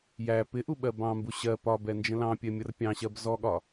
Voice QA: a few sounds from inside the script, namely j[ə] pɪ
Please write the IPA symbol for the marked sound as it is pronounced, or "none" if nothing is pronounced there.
æ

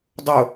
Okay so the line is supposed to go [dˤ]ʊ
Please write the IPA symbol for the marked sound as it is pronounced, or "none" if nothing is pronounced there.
dˤ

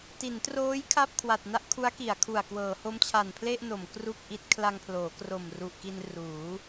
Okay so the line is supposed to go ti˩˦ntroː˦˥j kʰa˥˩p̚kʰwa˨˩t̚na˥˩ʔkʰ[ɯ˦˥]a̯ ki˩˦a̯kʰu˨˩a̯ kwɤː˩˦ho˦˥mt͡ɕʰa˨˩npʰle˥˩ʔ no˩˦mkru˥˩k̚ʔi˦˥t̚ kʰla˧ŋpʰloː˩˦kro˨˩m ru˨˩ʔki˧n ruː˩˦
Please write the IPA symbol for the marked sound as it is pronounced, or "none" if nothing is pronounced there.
u˦˥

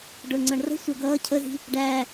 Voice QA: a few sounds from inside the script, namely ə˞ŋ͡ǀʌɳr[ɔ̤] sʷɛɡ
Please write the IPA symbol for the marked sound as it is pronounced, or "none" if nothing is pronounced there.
ə̤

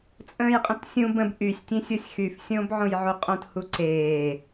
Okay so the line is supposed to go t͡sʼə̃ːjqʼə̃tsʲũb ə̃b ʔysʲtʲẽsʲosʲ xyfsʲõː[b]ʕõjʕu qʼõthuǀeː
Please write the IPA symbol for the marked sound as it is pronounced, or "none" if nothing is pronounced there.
b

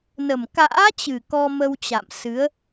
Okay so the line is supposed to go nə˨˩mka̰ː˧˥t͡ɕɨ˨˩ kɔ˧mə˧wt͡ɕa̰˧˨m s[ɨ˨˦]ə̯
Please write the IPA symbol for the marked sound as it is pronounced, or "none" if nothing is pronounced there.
ɨ˨˦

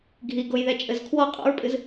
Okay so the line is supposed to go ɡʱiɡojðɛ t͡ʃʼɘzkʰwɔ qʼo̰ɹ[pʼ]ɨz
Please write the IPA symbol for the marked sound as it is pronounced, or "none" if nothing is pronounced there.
pʼ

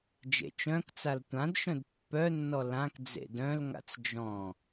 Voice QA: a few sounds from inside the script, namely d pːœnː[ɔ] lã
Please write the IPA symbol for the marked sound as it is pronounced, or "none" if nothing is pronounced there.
ɔ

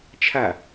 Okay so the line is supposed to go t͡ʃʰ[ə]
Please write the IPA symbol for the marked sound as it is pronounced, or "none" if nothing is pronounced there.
a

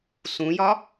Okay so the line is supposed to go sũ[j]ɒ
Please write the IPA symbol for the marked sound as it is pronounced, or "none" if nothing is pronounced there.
j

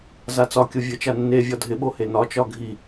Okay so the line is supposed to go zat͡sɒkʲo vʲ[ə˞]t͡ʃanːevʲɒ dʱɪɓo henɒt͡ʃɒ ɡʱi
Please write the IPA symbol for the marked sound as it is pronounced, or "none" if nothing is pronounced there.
ə˞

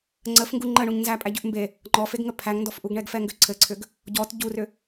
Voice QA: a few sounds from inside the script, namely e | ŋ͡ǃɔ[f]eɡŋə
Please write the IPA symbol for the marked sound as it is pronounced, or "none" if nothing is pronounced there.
f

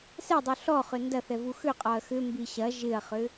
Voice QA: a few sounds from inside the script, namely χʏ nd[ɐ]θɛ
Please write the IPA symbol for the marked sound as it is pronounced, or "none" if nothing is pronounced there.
ɐ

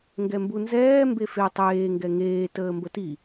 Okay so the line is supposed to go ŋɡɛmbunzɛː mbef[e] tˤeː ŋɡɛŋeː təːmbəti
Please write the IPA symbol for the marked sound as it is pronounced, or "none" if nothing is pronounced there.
e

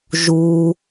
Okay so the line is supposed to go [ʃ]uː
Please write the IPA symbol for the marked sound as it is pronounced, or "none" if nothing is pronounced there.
ʒ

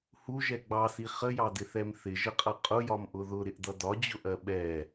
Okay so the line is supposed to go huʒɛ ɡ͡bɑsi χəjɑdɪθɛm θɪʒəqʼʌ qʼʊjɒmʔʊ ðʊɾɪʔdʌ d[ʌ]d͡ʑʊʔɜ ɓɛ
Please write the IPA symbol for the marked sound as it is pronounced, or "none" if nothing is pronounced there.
ɒ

